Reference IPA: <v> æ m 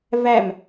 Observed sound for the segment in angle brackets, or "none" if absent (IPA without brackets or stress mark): v